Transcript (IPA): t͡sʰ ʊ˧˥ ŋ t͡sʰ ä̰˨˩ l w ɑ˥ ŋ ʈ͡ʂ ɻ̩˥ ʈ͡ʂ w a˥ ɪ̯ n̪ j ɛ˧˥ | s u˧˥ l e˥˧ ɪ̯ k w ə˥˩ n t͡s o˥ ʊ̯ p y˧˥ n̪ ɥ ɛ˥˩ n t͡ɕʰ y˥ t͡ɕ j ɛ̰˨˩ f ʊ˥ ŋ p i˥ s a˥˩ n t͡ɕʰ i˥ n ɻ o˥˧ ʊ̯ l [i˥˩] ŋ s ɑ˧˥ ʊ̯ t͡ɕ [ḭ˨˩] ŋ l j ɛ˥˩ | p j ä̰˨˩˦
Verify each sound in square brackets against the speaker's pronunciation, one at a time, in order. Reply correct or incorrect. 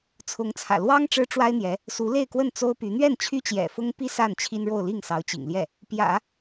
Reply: correct, correct

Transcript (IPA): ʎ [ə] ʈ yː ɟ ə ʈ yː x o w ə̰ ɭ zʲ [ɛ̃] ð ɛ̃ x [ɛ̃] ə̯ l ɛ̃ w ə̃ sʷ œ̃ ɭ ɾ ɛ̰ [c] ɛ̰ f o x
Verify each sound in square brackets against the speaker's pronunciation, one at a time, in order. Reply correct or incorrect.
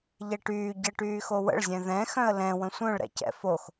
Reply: incorrect, correct, incorrect, correct

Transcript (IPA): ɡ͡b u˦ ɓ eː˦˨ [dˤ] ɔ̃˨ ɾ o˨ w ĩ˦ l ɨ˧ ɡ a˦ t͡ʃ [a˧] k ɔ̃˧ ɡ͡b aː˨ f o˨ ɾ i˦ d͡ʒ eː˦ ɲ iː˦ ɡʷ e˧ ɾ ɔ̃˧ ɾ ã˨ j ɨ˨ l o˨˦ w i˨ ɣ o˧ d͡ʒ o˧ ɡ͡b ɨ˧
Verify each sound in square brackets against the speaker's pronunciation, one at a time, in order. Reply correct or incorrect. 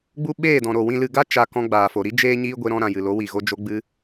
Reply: incorrect, correct

